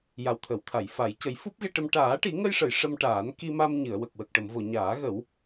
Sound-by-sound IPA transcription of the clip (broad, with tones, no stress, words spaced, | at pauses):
ja˨˩wt̪ʰə˨˩˨wt̪ʰa˨˩˨j fa˨˩˦j cə˨˩˦jfu˦˥p̚ ɣe˧ʈə˧m ʈaː˨˩˦ʈi˨˩˦ŋə˧jʂə˨˩˨j ʂə˧mʈaː˨˩˦n ki˧ma˧m ɲɨ˨˩˨ə̯wə˨˩k̚ wə˨˩k̚ʈə˨˩˨mvo˨˩˨ ɲaː˨˩˦ɣə˨˩˦w